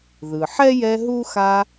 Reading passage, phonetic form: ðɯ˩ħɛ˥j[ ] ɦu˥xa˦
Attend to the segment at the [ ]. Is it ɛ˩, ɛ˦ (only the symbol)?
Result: ɛ˦